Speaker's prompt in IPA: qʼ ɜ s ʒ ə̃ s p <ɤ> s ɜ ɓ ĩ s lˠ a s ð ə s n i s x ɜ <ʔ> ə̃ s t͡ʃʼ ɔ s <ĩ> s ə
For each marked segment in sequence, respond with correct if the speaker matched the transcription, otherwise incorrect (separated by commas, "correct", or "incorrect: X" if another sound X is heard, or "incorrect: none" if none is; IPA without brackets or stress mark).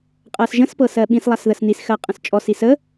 correct, incorrect: qʼ, incorrect: i